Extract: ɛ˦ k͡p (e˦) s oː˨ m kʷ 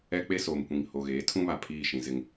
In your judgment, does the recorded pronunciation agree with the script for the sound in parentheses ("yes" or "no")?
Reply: yes